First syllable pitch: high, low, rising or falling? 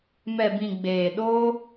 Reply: low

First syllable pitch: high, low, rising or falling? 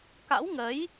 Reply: rising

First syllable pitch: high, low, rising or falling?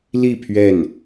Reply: falling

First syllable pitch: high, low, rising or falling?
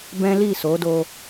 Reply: high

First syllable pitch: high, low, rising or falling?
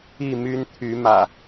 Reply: falling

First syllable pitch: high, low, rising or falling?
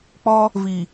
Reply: high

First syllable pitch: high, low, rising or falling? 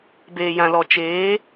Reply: low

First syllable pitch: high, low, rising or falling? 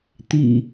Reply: low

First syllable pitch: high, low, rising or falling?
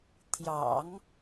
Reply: low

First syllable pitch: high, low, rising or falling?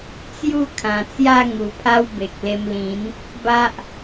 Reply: falling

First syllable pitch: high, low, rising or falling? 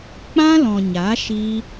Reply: high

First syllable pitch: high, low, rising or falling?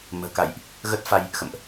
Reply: low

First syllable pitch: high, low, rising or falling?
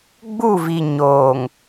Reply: falling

